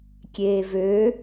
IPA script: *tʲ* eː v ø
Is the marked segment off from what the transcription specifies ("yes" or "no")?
yes